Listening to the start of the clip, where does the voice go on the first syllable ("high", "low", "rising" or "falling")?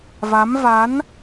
rising